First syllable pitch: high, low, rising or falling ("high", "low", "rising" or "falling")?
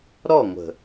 falling